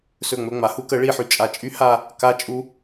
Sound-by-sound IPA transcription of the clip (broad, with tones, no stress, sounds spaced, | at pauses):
s ɵ˦˨ ŋ͡m ɵ˧ ŋ͡m a˨ h u˦ k ə˨˦ ɭ i˧ ħ y˨ t͡ʃʼ a˨ t͡ʃʼ y˦ h a˦˨ | k a˦ t͡ʃʼ u˦